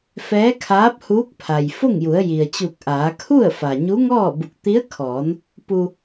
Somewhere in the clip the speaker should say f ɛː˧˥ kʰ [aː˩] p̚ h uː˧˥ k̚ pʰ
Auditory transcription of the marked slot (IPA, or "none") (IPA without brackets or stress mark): aː˧˥